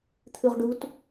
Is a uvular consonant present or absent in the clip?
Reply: present